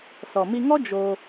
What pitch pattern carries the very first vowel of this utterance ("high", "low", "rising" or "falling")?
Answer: low